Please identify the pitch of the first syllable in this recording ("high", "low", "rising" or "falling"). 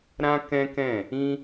high